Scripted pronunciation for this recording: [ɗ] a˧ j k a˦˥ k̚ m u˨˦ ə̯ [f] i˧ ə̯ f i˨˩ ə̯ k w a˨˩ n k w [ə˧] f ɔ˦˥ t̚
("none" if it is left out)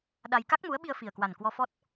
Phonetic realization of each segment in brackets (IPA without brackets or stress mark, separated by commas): ɗ, ɓ, ɔ˧